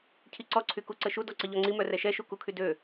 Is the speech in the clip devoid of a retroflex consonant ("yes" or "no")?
yes